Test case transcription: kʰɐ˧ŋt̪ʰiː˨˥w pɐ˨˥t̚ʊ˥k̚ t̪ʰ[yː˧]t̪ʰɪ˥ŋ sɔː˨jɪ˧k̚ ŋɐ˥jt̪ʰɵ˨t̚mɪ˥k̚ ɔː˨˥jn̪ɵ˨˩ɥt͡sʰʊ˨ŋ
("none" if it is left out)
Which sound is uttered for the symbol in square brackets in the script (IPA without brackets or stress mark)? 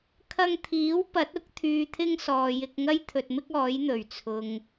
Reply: yː˧